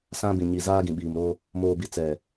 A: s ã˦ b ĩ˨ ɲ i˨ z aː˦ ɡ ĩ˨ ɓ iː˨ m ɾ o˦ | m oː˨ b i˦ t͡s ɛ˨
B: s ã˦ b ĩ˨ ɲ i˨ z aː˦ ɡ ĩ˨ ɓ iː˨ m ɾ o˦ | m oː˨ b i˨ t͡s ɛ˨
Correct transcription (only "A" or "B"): B